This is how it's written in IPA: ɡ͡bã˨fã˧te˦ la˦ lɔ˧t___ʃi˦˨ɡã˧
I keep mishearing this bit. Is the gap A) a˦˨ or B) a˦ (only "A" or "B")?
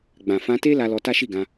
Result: B